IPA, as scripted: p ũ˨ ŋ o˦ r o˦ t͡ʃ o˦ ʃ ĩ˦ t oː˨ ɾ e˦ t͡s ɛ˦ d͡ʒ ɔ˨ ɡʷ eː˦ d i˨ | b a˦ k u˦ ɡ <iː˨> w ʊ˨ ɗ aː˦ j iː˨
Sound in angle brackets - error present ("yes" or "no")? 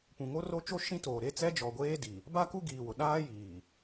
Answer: no